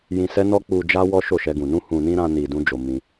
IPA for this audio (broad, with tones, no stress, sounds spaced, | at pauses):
j ĩ˧ s ɛ˦ n ɔ˦ k͡p u˧ d͡ʒ a˦ w ɔ˦ ʃ o˦˨ ʃ ɛ˧ ɡ ũ˨ n ũ˧ h ũ˨ n ĩ˧ ɾ ã˧ n i˨ d ũ˧ d͡ʒ o˨ m ĩ˧